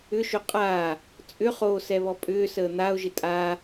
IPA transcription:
ʏ ʃ ʏ qʼ a | t͡sʼ ʏ χ oː s ɛ β ɔ pʼ ʏː s əː n̪ a ʊ̯ ʒ ɪ tʼ a

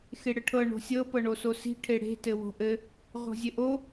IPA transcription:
x e ɽ ɘ ʈʰ ɤ ɳ o̤ sʲ ɤ p ɤ ɳ o s o s i̤ ʈʰ e ɽ e̤ t ɘ w o̤ ʔ ɘ | ʁ o̤ zʲ ɘ ʔ o

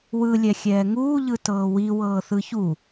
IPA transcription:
w ɯ lʲ ɛ xʲ ɛː ŋ uː ʎ ɯ t ɤː w i w ɤː θ ɯ ç u

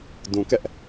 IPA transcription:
d ũ˨ k ɛ˦ ʔ

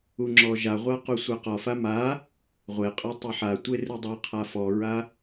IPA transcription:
u ŋ͡ǁ ɔ ʒ a ʁʷ a q u sʷ ɛ q ɔ f a m a | ʁʷ e qʼ a tˤ ɛ ħ a tʷ e r ɨ dˤ a qʰ a f ɔ ɹ a

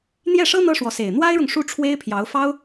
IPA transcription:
n̪ j ɛ˥˩ ʂ ɤ˥ n̪ ɤ˥ ʂ w ɔ˧˥ s e˨˩ ɪ̯ n̪ w a˥ ɪ̯ ɻ ʊ˨ ŋ ʂ u˥ ʈ͡ʂʰ w e˥ ɪ̯ pʰ j ɑ˧˥ ʊ̯ f ɑ˥ ʊ̯

